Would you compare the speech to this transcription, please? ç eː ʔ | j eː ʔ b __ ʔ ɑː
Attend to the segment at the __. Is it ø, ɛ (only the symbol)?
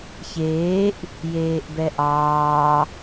ɛ